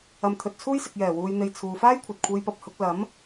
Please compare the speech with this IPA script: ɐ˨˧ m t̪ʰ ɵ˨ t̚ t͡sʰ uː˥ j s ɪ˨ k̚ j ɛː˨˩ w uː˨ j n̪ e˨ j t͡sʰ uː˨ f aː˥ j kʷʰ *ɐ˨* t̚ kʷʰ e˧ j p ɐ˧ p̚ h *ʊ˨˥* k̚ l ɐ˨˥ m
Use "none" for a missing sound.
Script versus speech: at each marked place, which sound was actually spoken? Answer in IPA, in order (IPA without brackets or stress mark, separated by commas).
ɐ˨, ʊ˨˥